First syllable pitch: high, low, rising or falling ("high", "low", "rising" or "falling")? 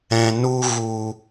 low